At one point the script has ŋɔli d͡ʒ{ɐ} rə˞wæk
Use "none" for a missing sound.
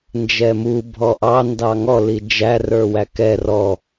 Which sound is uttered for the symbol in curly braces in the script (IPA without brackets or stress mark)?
æ